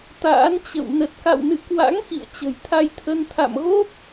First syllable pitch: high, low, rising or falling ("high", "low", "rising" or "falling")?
rising